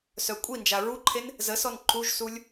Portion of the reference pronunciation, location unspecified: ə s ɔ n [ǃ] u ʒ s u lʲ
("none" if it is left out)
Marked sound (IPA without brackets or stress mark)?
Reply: ǃ